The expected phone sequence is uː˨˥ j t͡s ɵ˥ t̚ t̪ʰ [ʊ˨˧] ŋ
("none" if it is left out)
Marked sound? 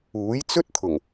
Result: ʊ˨˩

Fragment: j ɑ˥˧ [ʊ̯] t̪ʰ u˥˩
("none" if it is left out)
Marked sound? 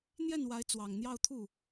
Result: ʊ̯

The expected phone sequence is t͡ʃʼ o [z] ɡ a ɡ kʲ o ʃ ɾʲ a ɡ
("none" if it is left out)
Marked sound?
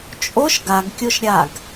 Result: ʃ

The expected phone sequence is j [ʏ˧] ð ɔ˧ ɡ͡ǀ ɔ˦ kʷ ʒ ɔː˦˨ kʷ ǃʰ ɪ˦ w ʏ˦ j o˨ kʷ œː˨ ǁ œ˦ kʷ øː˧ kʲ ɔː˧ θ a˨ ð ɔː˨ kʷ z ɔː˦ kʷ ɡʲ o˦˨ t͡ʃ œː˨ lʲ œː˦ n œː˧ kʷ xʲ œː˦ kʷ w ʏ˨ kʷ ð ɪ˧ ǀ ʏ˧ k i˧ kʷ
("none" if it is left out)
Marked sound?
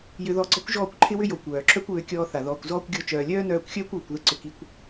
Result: ʏ˧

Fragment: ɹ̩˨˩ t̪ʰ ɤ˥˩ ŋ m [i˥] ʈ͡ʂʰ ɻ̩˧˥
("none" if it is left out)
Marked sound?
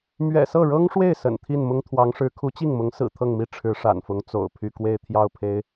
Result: i˥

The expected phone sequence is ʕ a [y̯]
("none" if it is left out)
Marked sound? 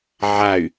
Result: y̯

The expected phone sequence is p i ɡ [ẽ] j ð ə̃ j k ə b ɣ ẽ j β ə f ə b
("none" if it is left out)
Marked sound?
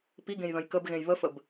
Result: ẽ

